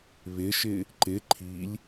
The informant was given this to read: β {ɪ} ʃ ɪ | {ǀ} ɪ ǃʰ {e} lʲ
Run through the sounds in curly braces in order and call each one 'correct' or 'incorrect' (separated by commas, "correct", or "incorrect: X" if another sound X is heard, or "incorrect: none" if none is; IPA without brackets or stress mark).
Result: correct, incorrect: ǃ, incorrect: i